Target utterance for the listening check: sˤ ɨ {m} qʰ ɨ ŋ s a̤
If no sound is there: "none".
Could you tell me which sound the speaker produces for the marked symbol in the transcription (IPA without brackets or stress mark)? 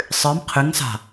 m